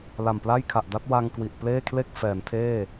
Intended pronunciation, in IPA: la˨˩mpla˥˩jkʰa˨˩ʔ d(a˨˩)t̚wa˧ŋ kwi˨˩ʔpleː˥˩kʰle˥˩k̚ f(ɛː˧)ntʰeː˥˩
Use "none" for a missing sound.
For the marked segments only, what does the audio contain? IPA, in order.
a˦˥, ɛː˩˦

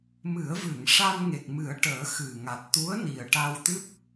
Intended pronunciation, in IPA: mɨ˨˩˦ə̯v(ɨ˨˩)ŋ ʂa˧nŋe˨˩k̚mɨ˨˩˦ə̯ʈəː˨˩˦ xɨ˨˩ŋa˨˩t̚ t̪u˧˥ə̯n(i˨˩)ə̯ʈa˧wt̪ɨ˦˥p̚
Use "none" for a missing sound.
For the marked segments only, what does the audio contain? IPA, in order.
ɨ˨˩˨, i˨˩

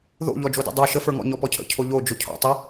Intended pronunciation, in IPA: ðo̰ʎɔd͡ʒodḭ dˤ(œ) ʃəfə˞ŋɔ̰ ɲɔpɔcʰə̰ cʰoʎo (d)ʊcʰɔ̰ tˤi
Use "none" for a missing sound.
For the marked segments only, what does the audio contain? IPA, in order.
œ, d͡ʒ

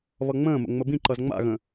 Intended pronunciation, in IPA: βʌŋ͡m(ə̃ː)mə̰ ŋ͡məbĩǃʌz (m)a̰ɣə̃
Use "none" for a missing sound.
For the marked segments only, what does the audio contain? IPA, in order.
ə̃ː, ŋ͡m

